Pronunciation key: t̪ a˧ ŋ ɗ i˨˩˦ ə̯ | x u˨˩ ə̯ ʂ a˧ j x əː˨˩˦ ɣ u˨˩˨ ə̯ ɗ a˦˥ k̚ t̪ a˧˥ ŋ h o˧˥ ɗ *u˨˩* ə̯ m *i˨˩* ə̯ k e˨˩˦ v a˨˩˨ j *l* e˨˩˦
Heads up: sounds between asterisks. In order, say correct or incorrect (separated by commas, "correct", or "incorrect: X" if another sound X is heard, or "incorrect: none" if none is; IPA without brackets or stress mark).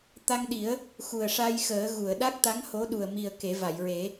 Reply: correct, correct, incorrect: ɹ